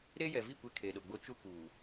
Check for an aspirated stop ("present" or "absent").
present